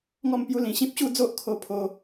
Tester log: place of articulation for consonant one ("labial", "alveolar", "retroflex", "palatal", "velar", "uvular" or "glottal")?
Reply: velar